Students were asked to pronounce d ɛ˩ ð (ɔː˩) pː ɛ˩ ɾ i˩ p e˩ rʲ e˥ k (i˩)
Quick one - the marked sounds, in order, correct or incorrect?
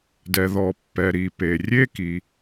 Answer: incorrect, correct

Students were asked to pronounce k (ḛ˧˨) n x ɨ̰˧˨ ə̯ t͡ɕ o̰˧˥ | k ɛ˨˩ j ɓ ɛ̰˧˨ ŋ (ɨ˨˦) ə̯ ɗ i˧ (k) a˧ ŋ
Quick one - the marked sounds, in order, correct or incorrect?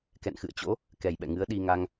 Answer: incorrect, correct, incorrect

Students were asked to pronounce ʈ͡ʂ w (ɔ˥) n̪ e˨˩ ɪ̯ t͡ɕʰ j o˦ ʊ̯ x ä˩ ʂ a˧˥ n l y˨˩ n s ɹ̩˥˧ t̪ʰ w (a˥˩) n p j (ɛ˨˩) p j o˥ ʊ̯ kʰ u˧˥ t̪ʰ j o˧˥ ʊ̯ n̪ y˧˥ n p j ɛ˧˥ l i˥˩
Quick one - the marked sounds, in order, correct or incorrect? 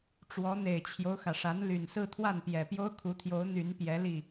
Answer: incorrect, correct, correct

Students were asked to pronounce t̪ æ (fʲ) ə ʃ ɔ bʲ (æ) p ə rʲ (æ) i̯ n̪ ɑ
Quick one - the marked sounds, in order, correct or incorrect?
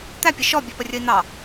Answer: incorrect, incorrect, incorrect

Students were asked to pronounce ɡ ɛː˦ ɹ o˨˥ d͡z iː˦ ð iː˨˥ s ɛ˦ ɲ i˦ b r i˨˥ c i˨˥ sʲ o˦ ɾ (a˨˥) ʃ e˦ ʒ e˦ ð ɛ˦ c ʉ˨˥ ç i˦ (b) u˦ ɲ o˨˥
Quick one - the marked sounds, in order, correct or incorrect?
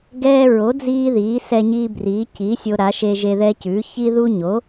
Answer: correct, incorrect

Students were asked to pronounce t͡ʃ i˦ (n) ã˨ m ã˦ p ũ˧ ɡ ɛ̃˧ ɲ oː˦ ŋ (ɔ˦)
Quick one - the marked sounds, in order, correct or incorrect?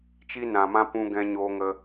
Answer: correct, incorrect

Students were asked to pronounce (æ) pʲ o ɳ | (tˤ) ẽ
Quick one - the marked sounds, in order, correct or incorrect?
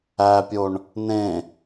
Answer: correct, incorrect

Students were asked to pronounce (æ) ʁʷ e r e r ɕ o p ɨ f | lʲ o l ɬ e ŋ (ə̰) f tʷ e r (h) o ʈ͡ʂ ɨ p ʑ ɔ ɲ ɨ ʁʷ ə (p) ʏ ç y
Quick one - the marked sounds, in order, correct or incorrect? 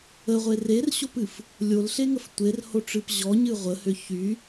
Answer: incorrect, incorrect, correct, incorrect

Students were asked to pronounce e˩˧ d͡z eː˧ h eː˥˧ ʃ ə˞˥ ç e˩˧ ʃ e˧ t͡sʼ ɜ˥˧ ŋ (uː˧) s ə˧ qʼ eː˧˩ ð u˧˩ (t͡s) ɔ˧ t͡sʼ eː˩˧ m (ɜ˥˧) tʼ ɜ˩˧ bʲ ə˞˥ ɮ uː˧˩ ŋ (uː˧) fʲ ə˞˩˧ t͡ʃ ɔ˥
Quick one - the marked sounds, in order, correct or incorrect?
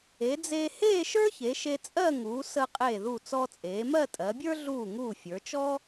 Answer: incorrect, correct, correct, incorrect

